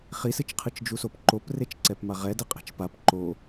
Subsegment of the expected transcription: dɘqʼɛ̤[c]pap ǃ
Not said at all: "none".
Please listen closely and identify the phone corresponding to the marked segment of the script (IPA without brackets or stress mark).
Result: t͡ʃ